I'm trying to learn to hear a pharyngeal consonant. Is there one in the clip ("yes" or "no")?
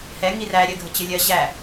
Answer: no